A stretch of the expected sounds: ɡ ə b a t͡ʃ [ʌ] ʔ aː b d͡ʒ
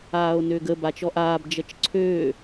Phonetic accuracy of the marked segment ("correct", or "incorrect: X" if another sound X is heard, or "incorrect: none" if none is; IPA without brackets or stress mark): incorrect: ɔ